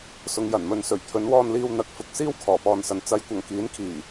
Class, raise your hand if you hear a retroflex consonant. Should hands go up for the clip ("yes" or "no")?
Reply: no